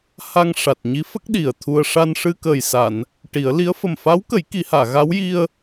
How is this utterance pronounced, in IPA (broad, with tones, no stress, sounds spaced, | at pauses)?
h a˧ ŋ ʂ a˨˩ t̚ ɲ i˧˥ f ə˦˥ k̚ ɗ i˨˩ ə̯ t̪ʰ u˧ ə̯ ʂ a˧ n ʂ ɨ˧ k əː˨˩ j s a˨˩˨ n | ʈ i˨˩˦ ə̯ l i˧˥ ə̯ f ə˨˩ m f a˧˥ w k ə˨˩˦ j k i˨˩˦ h aː˨˩˨ ɣ a˧˥ w j i˧ ə̯